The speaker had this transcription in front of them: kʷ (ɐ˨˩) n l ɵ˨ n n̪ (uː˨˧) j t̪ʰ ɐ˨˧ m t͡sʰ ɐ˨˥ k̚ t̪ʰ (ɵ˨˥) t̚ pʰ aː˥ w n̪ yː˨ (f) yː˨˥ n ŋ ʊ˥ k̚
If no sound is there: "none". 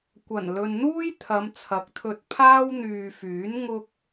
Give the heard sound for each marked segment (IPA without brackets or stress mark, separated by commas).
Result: ɐ˨˩, uː˥, ɵ˧, f